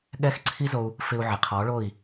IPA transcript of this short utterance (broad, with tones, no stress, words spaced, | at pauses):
ɠɛ˦xǀʰi˦zo˧u̯ | fɪ˧u̯ʕɪ˨qʰɔ˨˦ɭo˦˨i̯